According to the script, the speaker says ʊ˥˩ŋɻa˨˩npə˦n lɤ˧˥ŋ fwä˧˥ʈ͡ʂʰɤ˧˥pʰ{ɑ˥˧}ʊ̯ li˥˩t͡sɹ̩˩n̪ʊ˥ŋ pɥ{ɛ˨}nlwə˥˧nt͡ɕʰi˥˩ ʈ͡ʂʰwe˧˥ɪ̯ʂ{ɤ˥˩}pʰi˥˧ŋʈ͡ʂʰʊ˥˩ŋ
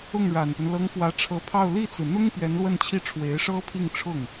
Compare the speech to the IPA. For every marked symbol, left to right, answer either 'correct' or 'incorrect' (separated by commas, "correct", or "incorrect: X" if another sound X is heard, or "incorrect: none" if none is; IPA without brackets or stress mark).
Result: correct, incorrect: ɛ˧˥, incorrect: ɤ˥